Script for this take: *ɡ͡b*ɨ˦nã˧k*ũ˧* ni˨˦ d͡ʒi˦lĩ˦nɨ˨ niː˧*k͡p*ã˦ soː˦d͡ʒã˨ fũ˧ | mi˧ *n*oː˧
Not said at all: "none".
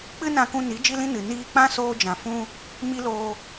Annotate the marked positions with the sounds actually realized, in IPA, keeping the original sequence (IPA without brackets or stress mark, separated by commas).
k͡p, ũ˧, k͡p, l